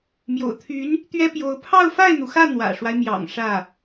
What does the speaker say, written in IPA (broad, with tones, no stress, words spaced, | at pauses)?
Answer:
mjo̰˨˩ʊ̯t̪ʰy˧˥n | t̪ɥɛ˥pjo˧˥ʊ̯ pʰɑ˥˧ʊ̯fa˥˩ɪ̯n̪u˩xä˥˩ n̪wä̰˨˩ʂwa˦ɪ̯mjɑ̰˨˩ŋ ʂä˥˩